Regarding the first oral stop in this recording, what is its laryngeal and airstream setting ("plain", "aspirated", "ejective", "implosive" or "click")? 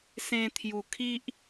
aspirated